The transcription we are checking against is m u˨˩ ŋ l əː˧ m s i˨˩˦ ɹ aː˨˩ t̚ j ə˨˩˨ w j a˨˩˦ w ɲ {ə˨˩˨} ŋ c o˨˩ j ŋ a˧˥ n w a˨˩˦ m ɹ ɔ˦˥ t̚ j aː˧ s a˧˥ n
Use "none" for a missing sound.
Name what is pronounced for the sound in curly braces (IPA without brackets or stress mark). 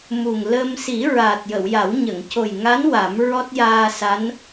ə˨˩˨